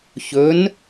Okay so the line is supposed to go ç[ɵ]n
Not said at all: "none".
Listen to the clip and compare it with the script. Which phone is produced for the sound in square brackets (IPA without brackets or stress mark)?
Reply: ɵ